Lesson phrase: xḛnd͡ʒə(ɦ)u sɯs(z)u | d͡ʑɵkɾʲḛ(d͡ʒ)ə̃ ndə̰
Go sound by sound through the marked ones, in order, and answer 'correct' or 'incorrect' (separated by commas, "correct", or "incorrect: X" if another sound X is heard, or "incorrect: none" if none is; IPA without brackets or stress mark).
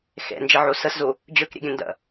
incorrect: ʕ, correct, incorrect: ɡʲ